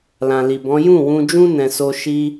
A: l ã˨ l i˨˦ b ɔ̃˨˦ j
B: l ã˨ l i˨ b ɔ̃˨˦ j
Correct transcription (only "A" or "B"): B